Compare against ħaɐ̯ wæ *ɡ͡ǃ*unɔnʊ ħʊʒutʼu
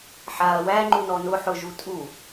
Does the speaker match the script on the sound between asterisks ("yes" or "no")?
no